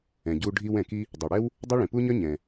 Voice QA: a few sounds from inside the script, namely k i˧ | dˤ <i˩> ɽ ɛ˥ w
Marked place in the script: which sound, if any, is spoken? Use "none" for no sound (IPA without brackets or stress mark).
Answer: i˩